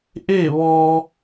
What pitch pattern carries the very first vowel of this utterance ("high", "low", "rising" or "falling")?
falling